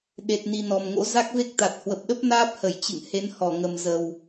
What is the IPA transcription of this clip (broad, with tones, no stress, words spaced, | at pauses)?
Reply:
ɗe˨˩t̚ni˨˩ nɔ˨˩mŋo̰˧˥ za˦˥k̚ve˦˥k̚t̪a˨˩t̚ hwə˨˩p̚ɗə˦˥p̚ naː˦˥p̚hə˧˩j t͡ɕɨ̰˧˨ŋhe˨˦n hɔ˧˩ŋə˨˩mzə˨˩w